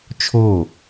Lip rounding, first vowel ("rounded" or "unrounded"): rounded